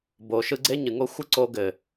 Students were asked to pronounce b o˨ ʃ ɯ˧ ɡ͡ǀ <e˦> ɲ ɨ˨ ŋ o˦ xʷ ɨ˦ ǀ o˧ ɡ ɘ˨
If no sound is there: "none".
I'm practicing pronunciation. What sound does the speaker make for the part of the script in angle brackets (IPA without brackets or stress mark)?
e˦